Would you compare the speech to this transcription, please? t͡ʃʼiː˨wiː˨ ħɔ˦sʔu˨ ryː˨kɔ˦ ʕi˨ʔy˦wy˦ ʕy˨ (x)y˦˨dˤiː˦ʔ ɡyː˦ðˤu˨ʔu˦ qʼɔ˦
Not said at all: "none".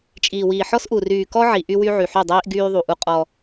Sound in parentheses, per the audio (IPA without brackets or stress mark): ħ